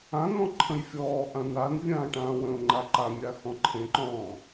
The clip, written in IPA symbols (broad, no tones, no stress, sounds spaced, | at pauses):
ã n̪ ɔ̃ ǃʰ ə̃ j fʲ ɔː ʔ ã n a n vʲ ãː ʈ ãː w ə̃ ʊ̯ ŋ͡ǃ a ǃ a mʲ a x ɔ̃ ǃʰ ẽ ǃ ɔ̃ː